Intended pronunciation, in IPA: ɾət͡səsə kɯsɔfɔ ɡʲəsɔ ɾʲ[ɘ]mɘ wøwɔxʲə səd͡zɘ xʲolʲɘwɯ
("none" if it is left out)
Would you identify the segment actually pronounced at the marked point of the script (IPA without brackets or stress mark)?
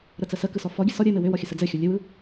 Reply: ɘ